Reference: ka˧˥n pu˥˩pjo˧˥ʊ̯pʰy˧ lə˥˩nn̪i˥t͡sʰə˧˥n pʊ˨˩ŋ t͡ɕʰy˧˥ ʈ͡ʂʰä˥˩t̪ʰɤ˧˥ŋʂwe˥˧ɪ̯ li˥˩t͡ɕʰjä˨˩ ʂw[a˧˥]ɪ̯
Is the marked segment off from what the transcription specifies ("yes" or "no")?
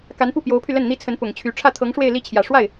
yes